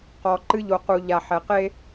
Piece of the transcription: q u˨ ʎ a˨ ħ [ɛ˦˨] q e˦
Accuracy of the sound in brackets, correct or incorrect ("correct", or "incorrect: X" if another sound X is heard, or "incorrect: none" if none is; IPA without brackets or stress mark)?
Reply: incorrect: ɛ˨